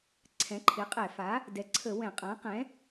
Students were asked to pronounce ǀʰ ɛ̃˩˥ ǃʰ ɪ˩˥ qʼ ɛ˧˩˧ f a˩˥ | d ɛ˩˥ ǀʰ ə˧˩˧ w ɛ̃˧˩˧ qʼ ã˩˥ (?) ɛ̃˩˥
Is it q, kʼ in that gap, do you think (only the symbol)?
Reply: q